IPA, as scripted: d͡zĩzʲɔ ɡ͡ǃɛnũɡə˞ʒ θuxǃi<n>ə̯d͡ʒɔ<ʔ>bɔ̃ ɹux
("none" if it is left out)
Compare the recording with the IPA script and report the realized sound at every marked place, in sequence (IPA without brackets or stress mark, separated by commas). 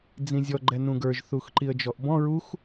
none, ʔ